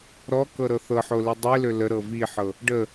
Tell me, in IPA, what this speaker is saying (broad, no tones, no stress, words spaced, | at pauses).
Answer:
ɾɔ kɤɾɤθɤħo lidˤilø ləɾɤ viħɤ | ɖə